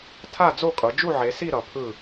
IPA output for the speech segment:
tʰ a˥˨ d͡z o˥˨ kʼ ʌ˩˧ d͡ʒ u˥˨ ʕ e˩˧ s i˥˨ ɾ ʌ˩˧ pʰ ɯ˥˨

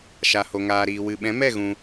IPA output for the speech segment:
ʃ a˨ h o˨ ŋ aː˨ ɾ iː˨ w ɨ˨ ɓ ɛ̃˨˦ m ɛ˦˨ ɣ ũ˧

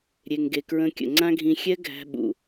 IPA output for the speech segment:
ɾʲ e˨ ŋ ɡ e˨ k ɹ ə̃˧ kʲ ə̰˨ ŋ͡ǀ ã˦ ɡʱ ĩ˧ xʲ ɛ˦ ɡʱ æ̤˧ ɓ ṵ˨

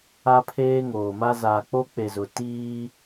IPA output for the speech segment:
a˦ pʰ eː˦ ŋ oː˨ m a˦ z aː˨ k͡p o˦ k͡p e˨ z ʊ˨ t iː˦

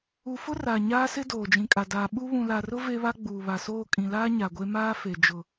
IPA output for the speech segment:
u˨ f ʊ˦ r aː˨ ɲ aː˦ s ɪ˦ d oː˨ d͡ʒ ĩ˨ kʼ a˨ d aː˨ ɓ u˦ β ũ˨ l a˨ r ʊ˦ v e˦ β a˦ ɡ͡b uː˨ β a˨ s oː˦˨ kʼ ĩ˨ l aː˦ ɲ a˨ ɡʷ e˦ m aː˦ f e˨ d͡ʒ ʊ˨

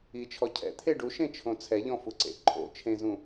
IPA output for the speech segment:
i t͡ʃʰ ɔ cʰ ɛ̰ t̪ʰ e ɖ u ʃ ẽ t͡ʃʰ õ t͡sʰ ɛ ʎ ɔ̃ f u ǀ ḛ ǃʰ o̰ t͡ʃʰ ẽ z ũ

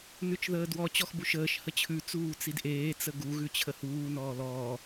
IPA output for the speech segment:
n ʉ t͡ʃ ð əː d w ɔ t͡ɕ ɔ x b u ʃ əː ʃ h ə t͡ɕʰ ʉ t͡s uː t͡s i d ʔ eː t͡s ə ɡ u ɣ ʉ t͡ɕʰ ə h uː n ɔː l ɔː

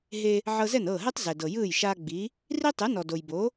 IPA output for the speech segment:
ɦ e˧ | ʕ ɤ˧ z ɛ˥˩ n ɤː˥˩ ɦ ɛ˥ tˤ z ɛ˩ d ɤ˩ j ɯː˥˩ j ʃ aː˧ ɡ͡b i˩˥ | r i˥ tˤ ɯ˩˥ n ɔ˩ d o˩ j b o˩˥

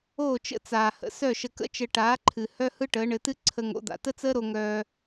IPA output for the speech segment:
oː˥˩ t͡ʃ ə̰˥ t͡s aː˩ h ə̰˩ s œ˥˩ ʃ ə˧ k ə̰˥ t͡ʃ ə˧ ʈ aː˩˥ ǃʰ ɨ˩ h œ˥ h ɯ˥ ʈ əː˩˥ ɳ ɘ˩˥ t ɨ˥ ǀʰ ə˧ ŋ o̰˩˥ d̪ a̰˩ t ə˥ t͡s əː˥ ɾ o˧ ŋ œː˧

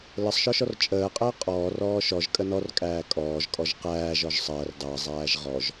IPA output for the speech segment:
l ə sˤ ʃ ɔ ʃ ɔ r t͡ʃʼ əː qʼ əː qʼ ɔː r ɔː ʃ ɔ ʒ kʼ ə n ɔ r kʼ æː kʼ ɔː ʒ kʼ ɔ ʒ q æː ʒ ɔ ʒ sˤ əː r dˤ əː zˤ æː ʒ ʁ ɔ ʒ

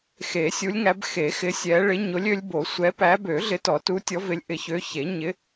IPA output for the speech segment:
x e˨˩˦ sʲ u˨˦ lʲ ŋ æ˨˦ b x e˨˩˦ x ɪ˨˦ sʲ ɛ˨˦ ɭ ɪ˨˦ ɲ o˨˦ lʲ ø˨˦ lʲ b o˨˩˦ sʷ ɛ˨˦ p æ˨˦ b ø˨˩˦ ɮ ɪ˨˦ t ɔ˨˩˦ t u˨˦ tʲ ɔ˨˦ v ɪ˨˦ lʲ ʔ ɪ˨˩˦ ç ø˨˦ ç e˨˩˦ ɲ ɪ˨˦

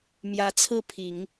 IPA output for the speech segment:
m j ä˧˥ t͡sʰ ɹ̩˥˩ pʰ i˨˩˦ ŋ

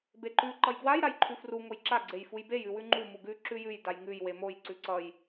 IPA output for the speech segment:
b e ǃ ʉ ǃ ʌ j ɡ w a j ɾ a j ǃʰ ʉ f r u ŋ o j ǁ a ɡ͡ǀ e j f u j b e j ʉ w ʉ ŋ͡ǃ u m u ɡ ʉ ǁ ʉ j ʉ j d a j ŋ ʉ j w e m o j ǀ ʉ ǀ ʌ j

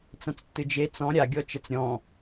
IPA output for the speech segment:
t͡s ɐ̃ t͡s tː ɨ d͡ʒ e t͡s ɔ̃ ɾʲ a ɡʲ ɔ t͡ʃ ɐ t͡s ɾʲ ɔ̃

